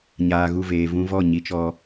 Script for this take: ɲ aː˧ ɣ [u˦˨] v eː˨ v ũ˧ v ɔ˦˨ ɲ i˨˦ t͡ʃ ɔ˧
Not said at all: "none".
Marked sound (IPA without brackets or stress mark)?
u˦˨